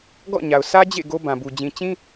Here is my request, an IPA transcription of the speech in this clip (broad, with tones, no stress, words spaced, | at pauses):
ɡɔ̰˦˨ɲa˨ʊ̯sʰä˦d͡ʑḛ˦˨ ɡo˦bã˨bu˨ d͡ʑĩ˨t͡ɕĩ˦